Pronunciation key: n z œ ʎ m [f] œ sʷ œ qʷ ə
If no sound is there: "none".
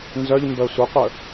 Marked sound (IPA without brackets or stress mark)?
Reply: b